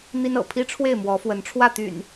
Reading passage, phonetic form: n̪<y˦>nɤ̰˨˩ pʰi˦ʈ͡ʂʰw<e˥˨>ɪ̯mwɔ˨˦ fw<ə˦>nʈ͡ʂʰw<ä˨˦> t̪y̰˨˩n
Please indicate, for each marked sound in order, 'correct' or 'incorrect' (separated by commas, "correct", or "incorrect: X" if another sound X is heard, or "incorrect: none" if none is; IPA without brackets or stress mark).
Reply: incorrect: i˦, correct, incorrect: ə˨˦, incorrect: ä˥˨